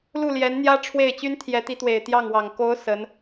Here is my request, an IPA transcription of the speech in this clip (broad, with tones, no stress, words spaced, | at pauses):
lu˥˩ljɛ˧˥nn̪jä˥ ʈ͡ʂʰwe˥˩ɪ̯ t͡ɕy˥nt̪ʰjɛ˧˥t̪i˧˥t̪we˨˩ɪ̯ t̪jɑ˥˩ŋwɑ˨˩ŋ ko˧˥ʊ̯ sə˧˥n